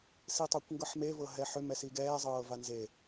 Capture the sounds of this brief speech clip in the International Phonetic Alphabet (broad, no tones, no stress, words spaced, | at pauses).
sitˤakʷŋɡɤħme vɤɦɛħʏ mɛsiɡɛː zˤɤːvanze